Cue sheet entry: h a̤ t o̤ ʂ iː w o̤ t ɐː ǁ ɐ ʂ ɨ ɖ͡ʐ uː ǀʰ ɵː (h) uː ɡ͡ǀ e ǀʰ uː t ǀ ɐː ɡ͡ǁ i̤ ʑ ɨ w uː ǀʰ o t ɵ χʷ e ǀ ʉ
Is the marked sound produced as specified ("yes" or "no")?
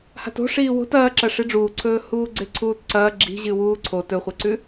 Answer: yes